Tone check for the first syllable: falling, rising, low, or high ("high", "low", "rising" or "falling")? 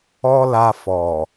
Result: high